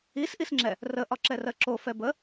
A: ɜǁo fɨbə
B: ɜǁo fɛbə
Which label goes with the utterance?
B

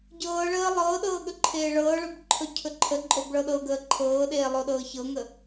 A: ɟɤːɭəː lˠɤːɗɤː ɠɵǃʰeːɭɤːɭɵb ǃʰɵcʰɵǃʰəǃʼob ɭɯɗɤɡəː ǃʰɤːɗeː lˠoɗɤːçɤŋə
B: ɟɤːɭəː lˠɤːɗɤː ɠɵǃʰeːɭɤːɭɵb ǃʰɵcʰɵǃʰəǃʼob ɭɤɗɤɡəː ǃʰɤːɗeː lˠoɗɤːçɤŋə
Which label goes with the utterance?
B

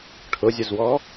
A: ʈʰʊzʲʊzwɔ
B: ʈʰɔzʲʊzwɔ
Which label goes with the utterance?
A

